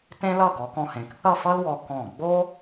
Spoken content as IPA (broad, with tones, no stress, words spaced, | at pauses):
tẽ˥lʌ˥˧ ɡɔ˩˧kɔ̃˧hẽ˩˧k θʌ˥˧fʌ˥lwɔ˧ kɔ̃˧˩ ɡ͡bo˥